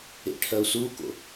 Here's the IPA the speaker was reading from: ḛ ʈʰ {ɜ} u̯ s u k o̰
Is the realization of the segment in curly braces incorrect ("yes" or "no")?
no